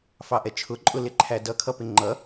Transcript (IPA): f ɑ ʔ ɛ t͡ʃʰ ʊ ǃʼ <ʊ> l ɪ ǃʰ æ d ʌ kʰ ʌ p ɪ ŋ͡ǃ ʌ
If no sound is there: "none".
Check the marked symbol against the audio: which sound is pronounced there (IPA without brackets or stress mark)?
ʊ